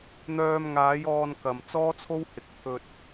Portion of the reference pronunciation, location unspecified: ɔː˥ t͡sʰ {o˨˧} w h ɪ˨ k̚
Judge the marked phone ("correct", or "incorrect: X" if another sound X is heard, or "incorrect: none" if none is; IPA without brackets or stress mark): incorrect: o˥